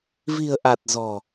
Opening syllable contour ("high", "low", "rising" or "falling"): low